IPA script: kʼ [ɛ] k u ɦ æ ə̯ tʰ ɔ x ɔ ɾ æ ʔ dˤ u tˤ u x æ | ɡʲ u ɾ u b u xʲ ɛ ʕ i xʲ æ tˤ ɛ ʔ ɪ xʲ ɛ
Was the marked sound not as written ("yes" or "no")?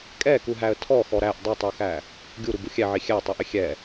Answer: no